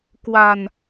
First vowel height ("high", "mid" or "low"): low